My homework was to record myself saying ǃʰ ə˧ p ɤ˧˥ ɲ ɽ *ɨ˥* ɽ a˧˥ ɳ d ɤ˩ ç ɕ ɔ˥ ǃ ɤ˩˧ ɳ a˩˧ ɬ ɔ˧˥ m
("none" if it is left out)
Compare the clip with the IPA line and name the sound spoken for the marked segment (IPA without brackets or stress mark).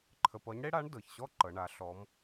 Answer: e˥